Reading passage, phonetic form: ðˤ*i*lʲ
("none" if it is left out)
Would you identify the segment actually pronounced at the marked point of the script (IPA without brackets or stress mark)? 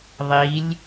i